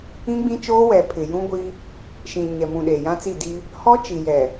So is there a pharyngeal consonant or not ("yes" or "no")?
no